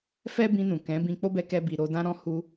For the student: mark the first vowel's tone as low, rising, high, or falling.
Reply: high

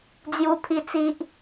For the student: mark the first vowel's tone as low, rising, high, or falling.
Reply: high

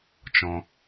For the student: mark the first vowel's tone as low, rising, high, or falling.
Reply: low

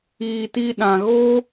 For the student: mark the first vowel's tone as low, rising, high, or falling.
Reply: low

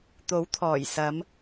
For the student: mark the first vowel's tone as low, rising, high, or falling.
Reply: rising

